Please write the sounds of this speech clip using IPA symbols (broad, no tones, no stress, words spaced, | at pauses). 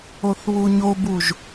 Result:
oθβuɲobuʒ